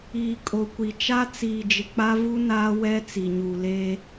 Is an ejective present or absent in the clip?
present